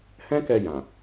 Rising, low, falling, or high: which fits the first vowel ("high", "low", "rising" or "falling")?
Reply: high